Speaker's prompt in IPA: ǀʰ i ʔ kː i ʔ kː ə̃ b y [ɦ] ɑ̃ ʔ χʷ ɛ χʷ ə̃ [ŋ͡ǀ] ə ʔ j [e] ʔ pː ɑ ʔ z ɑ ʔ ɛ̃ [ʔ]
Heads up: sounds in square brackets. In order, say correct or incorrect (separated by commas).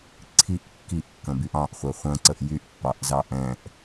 incorrect, incorrect, incorrect, correct